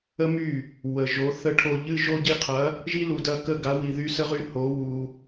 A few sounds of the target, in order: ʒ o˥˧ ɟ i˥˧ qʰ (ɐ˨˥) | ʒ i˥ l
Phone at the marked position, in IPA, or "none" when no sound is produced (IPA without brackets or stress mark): ɐ˨˥